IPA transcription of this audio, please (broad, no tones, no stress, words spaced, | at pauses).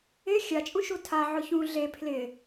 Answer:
ɪ xʲat͡ʃʼũʃu tʰa ʕʊçũ ɮe pʰlɪ